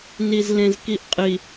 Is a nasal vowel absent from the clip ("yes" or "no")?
no